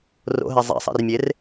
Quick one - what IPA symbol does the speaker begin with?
r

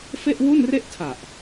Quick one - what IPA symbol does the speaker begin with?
f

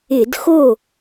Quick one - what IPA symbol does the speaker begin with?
ɪ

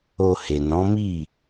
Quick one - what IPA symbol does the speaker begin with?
o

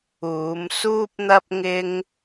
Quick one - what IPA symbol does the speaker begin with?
uː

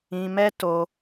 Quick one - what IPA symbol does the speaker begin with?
ĩ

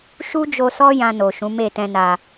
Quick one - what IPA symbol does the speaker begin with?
ʃ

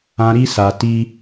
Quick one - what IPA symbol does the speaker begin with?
ã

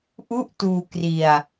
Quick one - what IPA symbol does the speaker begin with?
ʔ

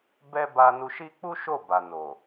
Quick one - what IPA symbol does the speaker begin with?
b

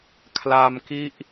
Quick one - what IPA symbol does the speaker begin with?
kʰ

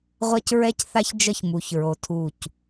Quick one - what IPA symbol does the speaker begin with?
ʁʷ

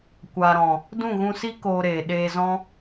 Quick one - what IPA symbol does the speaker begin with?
kʷ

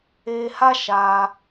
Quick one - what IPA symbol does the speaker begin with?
eː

